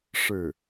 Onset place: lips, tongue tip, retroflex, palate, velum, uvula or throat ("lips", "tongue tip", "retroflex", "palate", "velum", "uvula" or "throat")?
retroflex